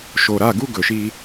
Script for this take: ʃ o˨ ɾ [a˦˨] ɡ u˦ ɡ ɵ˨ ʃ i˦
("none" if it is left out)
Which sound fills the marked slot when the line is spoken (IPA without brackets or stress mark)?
a˦˨